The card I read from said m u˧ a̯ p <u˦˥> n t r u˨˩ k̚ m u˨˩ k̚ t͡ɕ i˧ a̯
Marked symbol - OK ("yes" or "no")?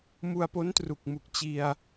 no